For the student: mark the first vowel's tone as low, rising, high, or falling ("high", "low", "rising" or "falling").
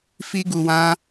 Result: high